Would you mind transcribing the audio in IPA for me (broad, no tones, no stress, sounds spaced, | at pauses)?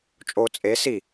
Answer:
t͡ʃʼ o t͡sʼ e s i